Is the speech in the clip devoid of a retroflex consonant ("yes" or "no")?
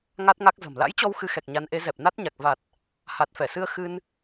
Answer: yes